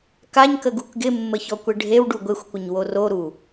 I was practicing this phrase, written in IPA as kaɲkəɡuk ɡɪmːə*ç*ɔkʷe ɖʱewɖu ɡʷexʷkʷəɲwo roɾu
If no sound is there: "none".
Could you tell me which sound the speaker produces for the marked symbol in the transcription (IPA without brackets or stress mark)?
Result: ç